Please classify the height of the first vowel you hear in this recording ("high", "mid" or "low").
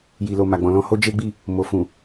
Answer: high